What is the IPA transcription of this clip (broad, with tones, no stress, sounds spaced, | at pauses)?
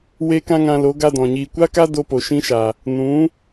w eː˦ k ã˦ ŋ ã˧ l o˨˦ ɡ a˦ d ɔ̃˨ ɲ iː˧ kʷ a˦ k a˦ d o˧ p o˨ ʃ ĩ˦ ʃ a˨ | n ũ˨˦